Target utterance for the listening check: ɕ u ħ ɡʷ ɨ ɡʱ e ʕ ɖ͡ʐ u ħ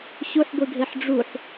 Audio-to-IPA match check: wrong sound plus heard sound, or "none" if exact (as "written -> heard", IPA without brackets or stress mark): ʕ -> ħ